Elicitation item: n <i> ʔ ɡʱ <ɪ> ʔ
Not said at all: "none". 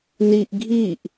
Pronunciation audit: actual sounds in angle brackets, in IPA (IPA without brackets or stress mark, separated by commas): i, i